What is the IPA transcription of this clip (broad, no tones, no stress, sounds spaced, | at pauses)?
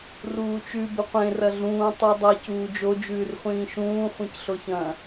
r uː t͡ʃ ʉ b ɵ qʷ ẽ r ɐ ɮ ũː tˤ ʉ dˤ ɐ c uː d͡ʒ o d͡ʒ ʉː r χʷ ĩː ʃ ũː χʷ ĩ c ɬ o ç ɐ̃